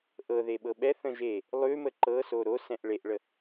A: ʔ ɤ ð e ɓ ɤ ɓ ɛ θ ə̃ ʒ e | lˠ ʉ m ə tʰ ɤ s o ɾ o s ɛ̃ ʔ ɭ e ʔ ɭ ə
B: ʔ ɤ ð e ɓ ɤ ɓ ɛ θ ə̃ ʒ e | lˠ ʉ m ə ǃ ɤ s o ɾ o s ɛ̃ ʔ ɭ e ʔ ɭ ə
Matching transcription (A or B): B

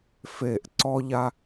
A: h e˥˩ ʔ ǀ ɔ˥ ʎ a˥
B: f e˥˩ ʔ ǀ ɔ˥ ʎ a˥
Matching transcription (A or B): B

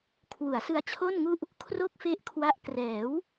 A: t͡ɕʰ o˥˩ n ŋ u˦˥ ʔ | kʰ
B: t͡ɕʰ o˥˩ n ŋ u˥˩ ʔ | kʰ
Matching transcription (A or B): B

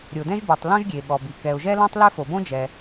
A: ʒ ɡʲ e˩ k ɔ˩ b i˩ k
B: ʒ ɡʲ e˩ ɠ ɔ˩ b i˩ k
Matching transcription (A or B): B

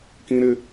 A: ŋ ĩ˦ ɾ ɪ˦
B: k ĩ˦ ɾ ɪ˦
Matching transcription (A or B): B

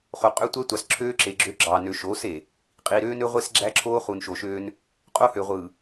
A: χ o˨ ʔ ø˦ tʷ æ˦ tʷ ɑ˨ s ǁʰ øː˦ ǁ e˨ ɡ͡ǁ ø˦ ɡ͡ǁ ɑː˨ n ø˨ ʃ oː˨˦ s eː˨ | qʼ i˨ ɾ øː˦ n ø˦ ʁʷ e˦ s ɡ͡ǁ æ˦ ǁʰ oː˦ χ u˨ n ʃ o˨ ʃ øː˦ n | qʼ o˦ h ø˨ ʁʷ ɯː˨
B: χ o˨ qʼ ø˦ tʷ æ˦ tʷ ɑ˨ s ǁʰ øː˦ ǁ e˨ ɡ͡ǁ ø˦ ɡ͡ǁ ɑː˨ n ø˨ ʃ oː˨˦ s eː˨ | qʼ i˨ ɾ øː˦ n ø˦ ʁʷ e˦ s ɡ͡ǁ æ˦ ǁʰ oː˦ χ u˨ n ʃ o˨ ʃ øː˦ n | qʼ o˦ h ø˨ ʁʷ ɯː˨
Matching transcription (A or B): B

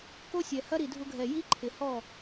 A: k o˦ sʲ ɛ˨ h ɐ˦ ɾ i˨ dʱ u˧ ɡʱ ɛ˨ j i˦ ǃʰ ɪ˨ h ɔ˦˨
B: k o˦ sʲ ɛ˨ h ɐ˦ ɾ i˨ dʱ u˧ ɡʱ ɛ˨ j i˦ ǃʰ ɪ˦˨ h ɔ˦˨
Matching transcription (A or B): A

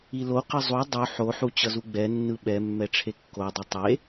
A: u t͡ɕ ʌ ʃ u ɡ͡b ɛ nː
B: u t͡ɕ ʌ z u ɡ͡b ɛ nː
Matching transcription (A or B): B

